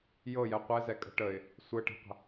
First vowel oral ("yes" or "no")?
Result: yes